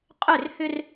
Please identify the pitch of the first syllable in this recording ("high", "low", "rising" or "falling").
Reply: falling